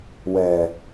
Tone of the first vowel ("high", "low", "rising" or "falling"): low